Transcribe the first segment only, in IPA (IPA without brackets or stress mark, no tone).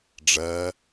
ɖ͡ʐ